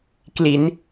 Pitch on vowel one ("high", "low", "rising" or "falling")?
rising